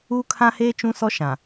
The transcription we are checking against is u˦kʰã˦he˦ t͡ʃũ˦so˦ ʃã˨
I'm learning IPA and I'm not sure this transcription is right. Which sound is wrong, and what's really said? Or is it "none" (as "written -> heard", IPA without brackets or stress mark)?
o˦ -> ɔ˦